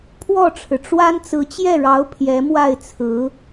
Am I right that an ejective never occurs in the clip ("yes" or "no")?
yes